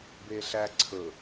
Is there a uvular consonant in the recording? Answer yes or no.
no